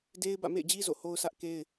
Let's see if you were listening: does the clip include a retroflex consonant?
no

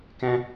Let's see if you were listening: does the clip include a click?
no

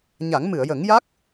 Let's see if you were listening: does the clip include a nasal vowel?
no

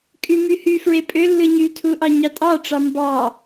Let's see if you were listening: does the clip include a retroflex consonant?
yes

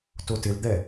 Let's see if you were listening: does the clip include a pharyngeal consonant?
no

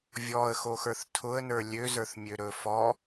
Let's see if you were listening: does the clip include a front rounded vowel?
yes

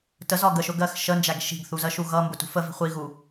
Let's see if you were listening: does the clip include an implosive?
no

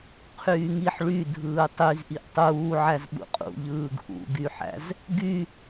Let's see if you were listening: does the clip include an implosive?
yes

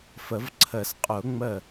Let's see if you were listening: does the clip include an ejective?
yes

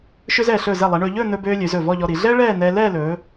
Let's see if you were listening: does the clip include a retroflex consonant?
yes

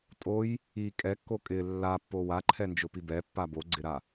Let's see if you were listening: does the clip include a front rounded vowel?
no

